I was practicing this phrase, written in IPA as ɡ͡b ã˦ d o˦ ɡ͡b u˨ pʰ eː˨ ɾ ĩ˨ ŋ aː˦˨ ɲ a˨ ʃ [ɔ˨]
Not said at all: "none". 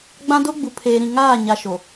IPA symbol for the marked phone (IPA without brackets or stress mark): o˨